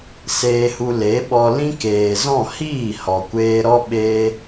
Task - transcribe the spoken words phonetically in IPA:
s eː˧ h u˧ l e˨˦ ɓ ɔ˧ l ĩ˦ k eː˨ z ɔ̃˦˨ h iː˦˨ h ɔ˨ kʷ eː˧ ɾ ɔ˦ ɓ eː˦

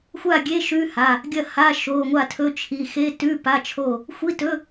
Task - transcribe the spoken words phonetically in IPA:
xʷ a˥˩ ɡʲ e˧˥˧ ʃ ʉ˧˥˧ h a˩˧˩ | ɡʲ ɐ˥˩ h a˧˥˧ ʃ o˩˧˩ ŋʷ a˥˩ tʰ ɵ˧˥˧ t͡ʃʰ i˩˧˩ x e˧˥˧ t ʉ˧˥˧ p a˧˥˧ t͡ʃʰ o˥˩ | xʷ i˧˥˧ t ɵ˧˥˧

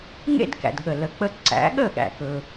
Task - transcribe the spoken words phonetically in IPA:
ŋ ḛ˥ d k æ̰˩ d ɠ ə˩ l ə˩ k͡p ə˧ ǀ æ̰˩˥ ɠ ə˥˩ ɠ æ̰˩ k ɵ˩

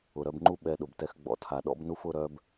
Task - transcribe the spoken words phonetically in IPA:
ʊ˨ ɾ œ˧ b ŋ͡ǃ u˦ ɓ ɛ˧ ɗ ʊ˨ b t ɛ˧ x ɡ͡b ɔ̰˧ tʰ a˨ ɗ ɔ̰˦ b n u˦ f ʊ˦ ɾ œ˦ b

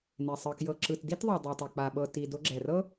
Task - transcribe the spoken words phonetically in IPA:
n e˩ sˤ ɤ˩ k j ɤ˩ ǁ ɯ˩ t d i˥ t ðˤ ɤ˩ dˤ ɛ˩ tˤ o˩ k͡p a˩ ɓ ɤ˩ t i˩ d o˧ ɡ͡ǁ ɛ˩ r ɤ˥

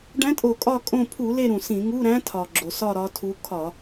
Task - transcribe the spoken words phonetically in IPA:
ɖ æ̃˧˥ tʼ o˧˩˧ kʼ ɒ˦˨ kʼ õ˦˨ pʰ u˧˩˧ l e˦˨ ɾ ũ˩ s ĩ˧˩˧ ŋ u˧˥˧ ɾ æ̃˧˥ tʰ ɒ˩ ɡ͡ǁ o˩ s ɒ˦˨ ɾ ɒ˧˥ tʰ u˧˥ kʰ ɒ˧˩˧

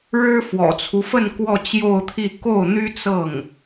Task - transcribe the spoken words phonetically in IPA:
ɻ ɻ̩˥ f w ɔ̰˨˩ t͡sʰ u˦ f ə˥˧ n k w ɔ˥˧ t͡ɕ j o˥˧ ʊ̯ t̪ʰ i˥˧ k o˥˩ ʊ̯ n̪ y˥ t͡s ɤ˥˩ ŋ

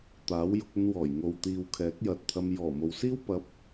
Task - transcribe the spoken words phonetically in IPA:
t̪ aː˨˥ w j ʊ˧ k̚ ɵ˧ n w ɔː˨˩ j ŋ o˨ w t̪ iː˨ w kʰ ɛː˨˥ k̚ j ɐ˨ t̚ t̪ʰ ɐ˧ m j ɔː˨˩ m o˨ w s iː˥ w p ɐ˨˥ p̚

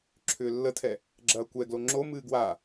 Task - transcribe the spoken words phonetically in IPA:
ǁʰ ʏː lː ə tʰ ɛ | ɡ͡ǁ ɐː kʷ ɛ ɡ l o ŋ͡ǁ o m ɨː ɡ w a

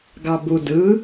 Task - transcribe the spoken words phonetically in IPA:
ɡ ɑ b u d ɯ

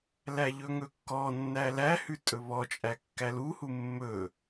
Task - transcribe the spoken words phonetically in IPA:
l æ ʎ ɵ ŋ ɵ kː ɔ nː æ l æ h ʉ tʼ ɵ β ɔ t͡ʃʼ æ kː æ l u h u mː ɵ

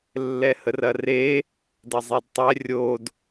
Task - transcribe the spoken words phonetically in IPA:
lː ɛ h ə r ɐ r e | d ɐ zˤ e d tˤ ɛ rʲ o d

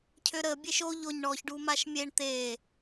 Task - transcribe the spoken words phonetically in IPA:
cʰ ø ɾ ə bʲ e ʃ o ʎ o ɲ ɳ ɔ ç ɖ u m a ʃ mʲ e ɳ t̪ e

